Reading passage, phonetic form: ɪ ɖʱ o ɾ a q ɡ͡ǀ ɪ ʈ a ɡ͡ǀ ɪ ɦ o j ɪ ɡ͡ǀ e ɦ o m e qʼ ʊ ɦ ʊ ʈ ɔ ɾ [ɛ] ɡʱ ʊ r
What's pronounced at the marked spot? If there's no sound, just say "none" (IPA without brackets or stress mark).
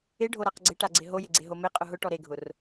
e